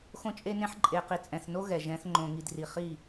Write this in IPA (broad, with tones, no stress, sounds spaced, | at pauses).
x õ˦ t͡ʃʼ e˦ n ẽ˦ ħ ǃʼ e˨ q i˨ t͡sʼ ɛ̃˨ θ n o˦ ɣ ɛ˨ ʒ ɛ̃˨˦ θ ŋ͡ǃ õ˨ ŋ i˨ d r i˨ χ i˦˨